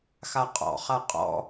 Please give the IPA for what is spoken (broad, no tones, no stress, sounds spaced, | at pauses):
x a qʼ ɔ̰ χ a qʼ ɔ̰